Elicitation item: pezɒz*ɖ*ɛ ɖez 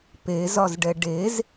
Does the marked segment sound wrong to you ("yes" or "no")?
no